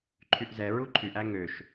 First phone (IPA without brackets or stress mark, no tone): ǃʰ